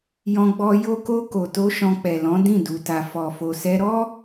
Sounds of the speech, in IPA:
jɔ̃˧ɡ͡bɔ˧ jo˧ko˧ ko˨to˧ ʃɔ̃˧k͡pɛ˨lɔ̃˨˦ dĩ˦˨du˨ta˨ fɔ˨fo˨sɛ˧ɾɔ˦

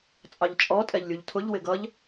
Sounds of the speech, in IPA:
t͡sʼɑʎt͡ʃʼɔ tʼɛʎlʲuʎtʰʊʎ wɪɡʌʎ

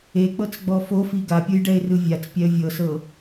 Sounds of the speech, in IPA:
ek͡pɤt͡sɡ͡bɔ fofi ɡapʲujɖɛɪ̯rɯ vʲat͡spʲɛə̯ vʲɤsɤ

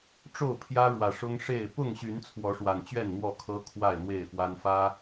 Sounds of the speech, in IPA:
ʈ͡ʂo˥˨ʊ̯pʰjä˦ɻwä˨˩ʂʊ˦ŋ ʂe˥˨ɪ̯ pʊ˥˨ŋɕy˨˦n t͡sʰwɔ˨˦ʂwa˨˩nt͡ɕɥɛ˥˨n n̪wɔ˥˨kʰɤ˦ kʰwa˥˨ɪ̯n̪we˥˨ɪ̯fwa˦n fä˦

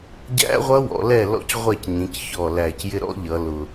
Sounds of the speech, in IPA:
ɟæ̰˦˥ʁʷʌ˦˥wɔ̰˩˧lɛ˦˨ lɔ̰˦˨cʁʷɛ˦˨cɲĩ˩˧c çɔ˨˩læ˨˩c jɪ˦˥ɾɔ̰˦˥ ʎʌ˩˧lʊ˨˩

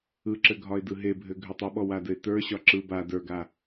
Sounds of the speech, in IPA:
ɯǁɘɡʱɒɪ̯dɯ ɦebʱɘ ɡʱɘtˤoɓɔ wadɘɪ̯tə˞ ɕɒǁɯ ba də˞ɡa

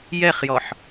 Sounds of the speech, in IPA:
jɛχjɔħ

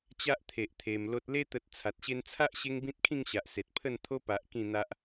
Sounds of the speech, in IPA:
t͡ɕa˦ʔt̪ʰe˨ʔ t̪ʰe˧m lo˨t̚le˧t̪ə˨t̚ t͡sʰa˨t̚ɕe˧nt͡sʰa˦ʔ ɕe˦ŋbĩ˦t̚kʰĩ˥˧ŋɕa˨ʔ se˨t̚pʰə˥˧nt̪ʰo˦ pa˨ʔ kĩ˥˧n̪a˦ʔ

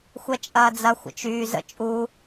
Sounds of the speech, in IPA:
xʷɛt͡ʃʼɐːd͡zɐ xʷə̰t͡ʃyː zə̰ t͡ʃʼu

